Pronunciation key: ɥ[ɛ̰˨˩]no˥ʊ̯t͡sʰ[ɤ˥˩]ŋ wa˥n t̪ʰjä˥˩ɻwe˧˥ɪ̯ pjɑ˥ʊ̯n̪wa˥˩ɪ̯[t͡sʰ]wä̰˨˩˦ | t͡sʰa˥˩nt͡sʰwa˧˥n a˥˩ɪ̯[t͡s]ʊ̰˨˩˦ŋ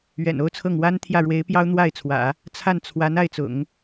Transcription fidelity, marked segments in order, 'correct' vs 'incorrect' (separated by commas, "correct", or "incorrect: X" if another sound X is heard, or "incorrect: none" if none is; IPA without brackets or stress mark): correct, correct, correct, correct